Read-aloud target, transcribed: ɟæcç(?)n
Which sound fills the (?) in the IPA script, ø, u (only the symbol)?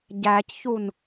u